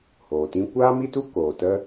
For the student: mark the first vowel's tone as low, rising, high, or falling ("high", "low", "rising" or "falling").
low